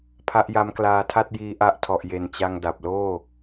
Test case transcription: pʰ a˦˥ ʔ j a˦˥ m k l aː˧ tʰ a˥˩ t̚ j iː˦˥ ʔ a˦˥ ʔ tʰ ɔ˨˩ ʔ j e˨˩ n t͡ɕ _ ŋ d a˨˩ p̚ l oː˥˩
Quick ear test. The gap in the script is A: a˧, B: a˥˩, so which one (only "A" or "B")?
A